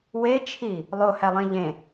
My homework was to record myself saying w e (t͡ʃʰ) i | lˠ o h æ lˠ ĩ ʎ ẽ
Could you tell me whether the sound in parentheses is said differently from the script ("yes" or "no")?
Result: no